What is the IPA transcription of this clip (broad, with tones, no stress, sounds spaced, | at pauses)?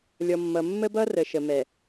lʲ ɔ˨ mː ʌ˨ mː ə˦ b ʌ˦ r ə˨ ʃ ə˨ m ɛ˨